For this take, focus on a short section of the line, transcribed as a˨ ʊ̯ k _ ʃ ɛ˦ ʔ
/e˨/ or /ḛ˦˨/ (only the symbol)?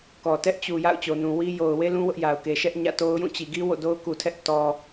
e˨